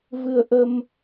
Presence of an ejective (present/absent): absent